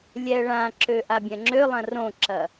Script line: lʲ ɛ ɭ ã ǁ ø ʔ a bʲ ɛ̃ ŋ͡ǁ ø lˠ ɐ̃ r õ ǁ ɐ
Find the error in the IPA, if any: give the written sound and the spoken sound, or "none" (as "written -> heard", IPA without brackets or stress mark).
none